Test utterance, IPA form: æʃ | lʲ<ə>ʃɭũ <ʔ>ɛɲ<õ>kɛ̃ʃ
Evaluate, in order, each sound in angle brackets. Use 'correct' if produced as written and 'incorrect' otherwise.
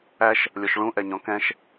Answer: incorrect: ɔ, correct, incorrect: ɔ̃

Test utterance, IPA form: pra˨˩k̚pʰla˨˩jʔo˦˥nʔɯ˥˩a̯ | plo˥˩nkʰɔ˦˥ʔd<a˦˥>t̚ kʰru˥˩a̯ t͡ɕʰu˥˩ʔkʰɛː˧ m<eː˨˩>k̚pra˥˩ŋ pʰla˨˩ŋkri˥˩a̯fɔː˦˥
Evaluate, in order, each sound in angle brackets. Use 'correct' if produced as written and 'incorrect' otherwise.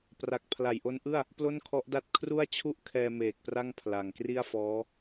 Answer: incorrect: a˥˩, correct

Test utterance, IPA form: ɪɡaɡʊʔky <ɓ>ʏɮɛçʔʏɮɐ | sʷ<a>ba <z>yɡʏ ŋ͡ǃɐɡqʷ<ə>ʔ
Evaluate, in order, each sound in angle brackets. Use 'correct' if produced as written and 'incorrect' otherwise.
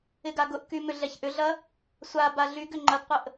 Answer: incorrect: m, correct, incorrect: ɮ, correct

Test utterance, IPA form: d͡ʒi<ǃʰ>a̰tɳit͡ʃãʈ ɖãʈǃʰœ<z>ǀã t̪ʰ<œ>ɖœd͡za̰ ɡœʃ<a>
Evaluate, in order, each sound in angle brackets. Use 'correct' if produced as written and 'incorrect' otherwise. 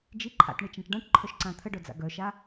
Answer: correct, incorrect: ʃ, incorrect: ə, correct

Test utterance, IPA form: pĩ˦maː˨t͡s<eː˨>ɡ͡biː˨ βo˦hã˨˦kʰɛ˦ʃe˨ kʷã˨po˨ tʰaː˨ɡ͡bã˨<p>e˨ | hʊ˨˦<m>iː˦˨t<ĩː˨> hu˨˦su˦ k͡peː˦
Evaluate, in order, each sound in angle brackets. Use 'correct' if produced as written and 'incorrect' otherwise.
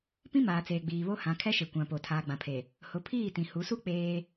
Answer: correct, incorrect: pʰ, incorrect: pʰ, incorrect: ĩ˨

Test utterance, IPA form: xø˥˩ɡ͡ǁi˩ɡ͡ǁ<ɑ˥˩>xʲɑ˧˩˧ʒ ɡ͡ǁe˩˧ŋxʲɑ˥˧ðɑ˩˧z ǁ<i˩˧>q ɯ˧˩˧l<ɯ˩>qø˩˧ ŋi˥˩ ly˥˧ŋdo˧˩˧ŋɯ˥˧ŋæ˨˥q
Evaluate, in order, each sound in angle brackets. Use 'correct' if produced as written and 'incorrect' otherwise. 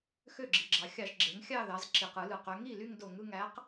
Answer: incorrect: ɑ˩, incorrect: i˩, correct

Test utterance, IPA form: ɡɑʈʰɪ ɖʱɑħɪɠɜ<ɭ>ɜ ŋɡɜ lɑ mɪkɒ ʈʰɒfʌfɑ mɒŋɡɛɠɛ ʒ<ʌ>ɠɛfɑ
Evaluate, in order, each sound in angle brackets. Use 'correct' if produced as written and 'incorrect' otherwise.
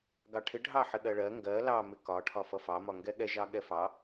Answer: correct, incorrect: ɑ

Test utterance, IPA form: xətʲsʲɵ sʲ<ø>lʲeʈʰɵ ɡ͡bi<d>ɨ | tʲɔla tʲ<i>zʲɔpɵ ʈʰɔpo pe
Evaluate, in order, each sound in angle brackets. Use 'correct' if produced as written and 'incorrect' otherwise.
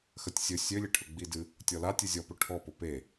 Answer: correct, correct, incorrect: ɨ

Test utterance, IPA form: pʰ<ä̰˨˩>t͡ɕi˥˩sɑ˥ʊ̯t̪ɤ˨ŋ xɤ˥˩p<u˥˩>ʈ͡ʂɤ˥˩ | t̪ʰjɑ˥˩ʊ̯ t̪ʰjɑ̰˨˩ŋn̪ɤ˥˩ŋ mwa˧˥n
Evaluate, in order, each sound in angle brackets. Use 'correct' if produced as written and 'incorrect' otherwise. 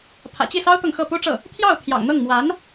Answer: correct, incorrect: u˥

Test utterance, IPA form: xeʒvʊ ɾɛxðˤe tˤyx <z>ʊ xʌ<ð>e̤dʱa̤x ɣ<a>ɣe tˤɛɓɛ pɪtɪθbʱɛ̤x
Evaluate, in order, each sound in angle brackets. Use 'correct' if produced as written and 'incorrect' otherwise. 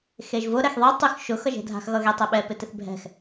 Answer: incorrect: ʃ, incorrect: ʒ, incorrect: ʌ

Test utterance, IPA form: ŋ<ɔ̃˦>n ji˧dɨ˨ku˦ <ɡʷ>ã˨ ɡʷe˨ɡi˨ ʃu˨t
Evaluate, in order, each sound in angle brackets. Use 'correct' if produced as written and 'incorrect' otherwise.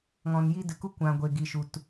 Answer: incorrect: ɔ̃˨, incorrect: kʷ

